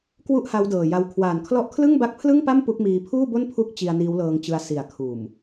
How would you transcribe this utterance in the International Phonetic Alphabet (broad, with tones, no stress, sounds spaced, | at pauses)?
k w u˥˩ ʔ h a˦˥ w d ɤː˨˩ j a˧ w kʰ w aː˨˩ n kʰ l ɔ˦˥ ʔ kʰ l ɯ˥˩ ŋ b a˦˥ k̚ pʰ l ɯ˥˩ ŋ p a˥˩ m p u˦˥ k̚ m iː˧ pʰ uː˥˩ b o˥˩ n pʰ u˦˥ k̚ t͡ɕ i˧ a̯ n iː˦˥ w l ɤː˧ ŋ t͡ɕ ɯ˧ a̯ s i˨˩ a̯ kʰ uː˨˩ m